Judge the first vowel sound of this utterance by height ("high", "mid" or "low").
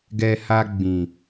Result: mid